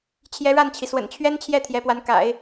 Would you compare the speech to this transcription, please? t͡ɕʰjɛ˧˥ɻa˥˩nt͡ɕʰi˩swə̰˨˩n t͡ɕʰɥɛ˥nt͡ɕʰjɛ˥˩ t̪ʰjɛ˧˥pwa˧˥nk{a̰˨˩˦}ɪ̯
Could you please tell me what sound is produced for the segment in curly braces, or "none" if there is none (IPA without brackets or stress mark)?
a̰˨˩˦